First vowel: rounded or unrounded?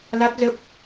unrounded